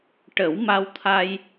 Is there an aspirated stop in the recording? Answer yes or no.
yes